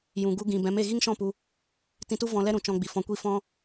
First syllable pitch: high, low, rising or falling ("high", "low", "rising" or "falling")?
low